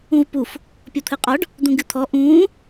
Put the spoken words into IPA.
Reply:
ũvpuf | pʲɔt̪ʰɨqʼɔɖ | d̪ũɡɨt̪ʰɔ ʔũː

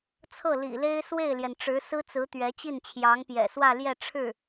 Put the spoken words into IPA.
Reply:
t͡sʰɤ˥˩lḭ˨˩le˥ɪ̯ swe˥˩ɪ̯ljɛ˩n ʈ͡ʂɻ̩˧˥sɹ̩˥t͡sɹ̩˧˥ t̪ɥɛ˧˥t͡ɕi˥˩nt͡ɕʰjɑ˧˥ŋpjɛ̰˨˩ swä˥˧ljɛ˥˧ʈ͡ʂʰɻ̩˥˩

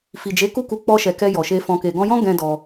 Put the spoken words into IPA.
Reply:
fi˨d͡ʒe˨˦ ku˦˨ku˨˦ k͡pɔ˧ʃɛ˨ kɛ˧jɔ˨ʃe˧ fɔ̃˨ke˨ɡɔ̃˧jɔ̃˦ ɡɛ̃˦dɔ˧

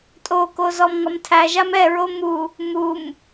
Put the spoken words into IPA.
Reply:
tʼoko zɔmŋɒmtʰæʒam ɛɹo mu | mum

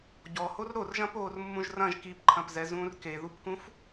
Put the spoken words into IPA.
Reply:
ɟɔhor ɾorʒɐ̃ poːrmːũʒrɐ̃ʒ kipǃʰɐ̃pzɛ zũːrkeðupkũf

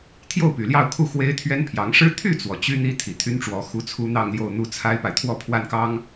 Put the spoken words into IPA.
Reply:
t̪ʰjo˥˩ʊ̯py˨˩ljɑ˥˧ʊ̯kʰu˥˩ xwe˥ɪ̯t̪ʰɥɛ˥npʰjɑ˧˥ŋ ʂɻ̩˥ t̪ʰy˥˩t͡swɔ˩ t͡ɕy˥n̪i˥ t̪ʰi˨˩t̪ʰy˥nʈ͡ʂwɔ˧˥ xu˥t͡sʰu˥n̪ɑ˥˧ŋljo˥˧ʊ̯ n̪u˥˩t͡sʰa˥ɪ̯pa˨ɪ̯ t̪ʰwɔ˥˧pʰwa˥˩nkɑ˥ŋ

